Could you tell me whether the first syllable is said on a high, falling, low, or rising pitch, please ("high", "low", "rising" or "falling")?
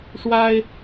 high